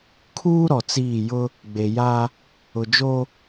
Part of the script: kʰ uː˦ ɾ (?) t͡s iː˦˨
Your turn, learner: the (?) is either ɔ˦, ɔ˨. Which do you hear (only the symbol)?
ɔ˨